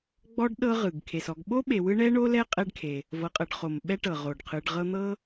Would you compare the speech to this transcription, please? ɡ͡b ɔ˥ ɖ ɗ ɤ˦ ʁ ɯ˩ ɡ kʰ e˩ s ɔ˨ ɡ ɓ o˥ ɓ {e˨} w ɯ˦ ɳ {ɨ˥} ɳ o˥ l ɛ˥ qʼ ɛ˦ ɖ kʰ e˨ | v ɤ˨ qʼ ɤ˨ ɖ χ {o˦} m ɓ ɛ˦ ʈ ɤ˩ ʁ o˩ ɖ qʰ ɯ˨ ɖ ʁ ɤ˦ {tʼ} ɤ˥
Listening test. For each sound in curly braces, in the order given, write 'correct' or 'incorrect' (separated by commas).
correct, incorrect, incorrect, incorrect